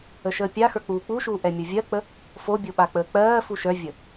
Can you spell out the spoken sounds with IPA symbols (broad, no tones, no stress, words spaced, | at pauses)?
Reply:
əʃəːpʲaxə˞ k͡puːk͡puʃuː ʔɛmʲə˞vʲɜk͡pə | fobʲo ɓak͡pəːk͡pɜːfu ʃœvʲə